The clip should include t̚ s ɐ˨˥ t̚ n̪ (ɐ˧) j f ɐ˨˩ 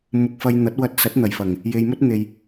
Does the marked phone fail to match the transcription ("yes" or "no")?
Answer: yes